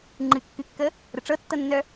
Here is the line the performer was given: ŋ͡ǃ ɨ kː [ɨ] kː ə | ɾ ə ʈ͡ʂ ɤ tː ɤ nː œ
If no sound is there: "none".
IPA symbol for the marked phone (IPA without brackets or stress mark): ɨ